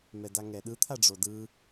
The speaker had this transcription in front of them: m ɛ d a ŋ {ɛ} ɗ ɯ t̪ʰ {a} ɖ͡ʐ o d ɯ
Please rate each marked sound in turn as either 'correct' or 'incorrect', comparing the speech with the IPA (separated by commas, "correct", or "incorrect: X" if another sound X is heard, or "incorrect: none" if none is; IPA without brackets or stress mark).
correct, correct